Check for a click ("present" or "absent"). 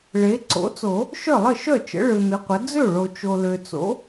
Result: present